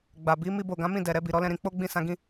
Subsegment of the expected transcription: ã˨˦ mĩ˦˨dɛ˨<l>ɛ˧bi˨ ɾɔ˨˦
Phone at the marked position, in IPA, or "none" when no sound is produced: ɾ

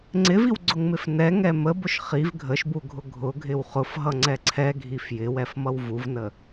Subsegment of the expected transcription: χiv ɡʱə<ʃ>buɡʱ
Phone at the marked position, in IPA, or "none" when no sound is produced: ʃ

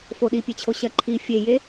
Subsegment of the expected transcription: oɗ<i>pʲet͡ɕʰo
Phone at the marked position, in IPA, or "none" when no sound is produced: i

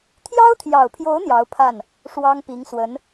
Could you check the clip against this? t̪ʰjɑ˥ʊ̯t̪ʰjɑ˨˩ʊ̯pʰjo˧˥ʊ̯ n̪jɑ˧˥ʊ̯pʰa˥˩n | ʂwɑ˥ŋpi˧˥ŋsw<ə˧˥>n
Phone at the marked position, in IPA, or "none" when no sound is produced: ə˧˥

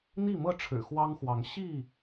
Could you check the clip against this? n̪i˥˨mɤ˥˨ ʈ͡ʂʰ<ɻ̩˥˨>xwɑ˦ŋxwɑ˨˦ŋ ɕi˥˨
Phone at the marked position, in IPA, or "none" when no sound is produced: ɻ̩˨˩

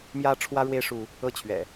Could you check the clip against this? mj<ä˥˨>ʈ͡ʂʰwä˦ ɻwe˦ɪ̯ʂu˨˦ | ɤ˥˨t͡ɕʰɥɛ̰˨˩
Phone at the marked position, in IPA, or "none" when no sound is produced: ä˦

